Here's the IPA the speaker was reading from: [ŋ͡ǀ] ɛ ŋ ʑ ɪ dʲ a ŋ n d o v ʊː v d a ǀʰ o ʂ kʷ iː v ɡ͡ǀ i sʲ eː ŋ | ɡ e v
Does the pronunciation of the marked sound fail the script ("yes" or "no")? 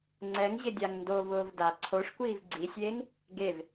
no